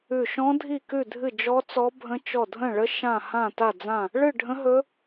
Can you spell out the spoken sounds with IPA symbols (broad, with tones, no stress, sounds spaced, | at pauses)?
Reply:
ʉ˥˧ ʃ ɔ̃˦˥ dʱ i˥˧ k ʉ˥˧ dʱ ɨ˥˧ d͡ʒ ɔ˦˥ t͡s ɔ˦˥ bʱ ə̃˦˥ t͡ʃ ɔ˥˧ dʱ ə̃˥˧ ɭ ə˦˥ ʃ ã˥˧ h ã˥˧ t a˥˧ d͡z ã˥˧ | ɭ ɨ˥˧ ɖʱ ə̃˦˥ ɦ ɵ˦˥